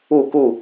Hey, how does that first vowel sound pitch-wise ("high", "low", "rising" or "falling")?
falling